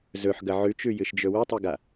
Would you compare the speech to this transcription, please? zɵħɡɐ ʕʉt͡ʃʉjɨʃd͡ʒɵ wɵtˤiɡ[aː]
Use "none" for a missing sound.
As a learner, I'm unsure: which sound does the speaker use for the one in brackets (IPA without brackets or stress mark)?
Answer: a